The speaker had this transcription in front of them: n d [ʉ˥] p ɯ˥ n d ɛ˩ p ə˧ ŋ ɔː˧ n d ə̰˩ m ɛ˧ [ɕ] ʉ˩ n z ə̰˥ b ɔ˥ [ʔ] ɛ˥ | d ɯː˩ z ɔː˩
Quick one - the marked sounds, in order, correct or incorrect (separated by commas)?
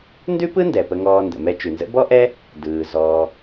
correct, incorrect, correct